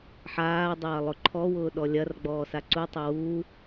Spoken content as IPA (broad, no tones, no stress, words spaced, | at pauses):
ħaː dˤɐːlˠʊǃʰɔwʊː ɗɔlʲɐrɡ͡bɔː saǀutˤʊ wuː